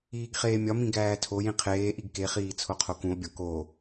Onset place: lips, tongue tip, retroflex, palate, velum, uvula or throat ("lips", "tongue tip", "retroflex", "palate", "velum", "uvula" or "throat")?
velum